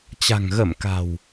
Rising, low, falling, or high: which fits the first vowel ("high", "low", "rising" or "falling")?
low